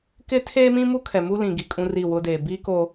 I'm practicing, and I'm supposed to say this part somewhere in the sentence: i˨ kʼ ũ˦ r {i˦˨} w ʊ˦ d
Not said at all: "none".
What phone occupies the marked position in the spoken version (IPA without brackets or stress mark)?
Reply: i˦˨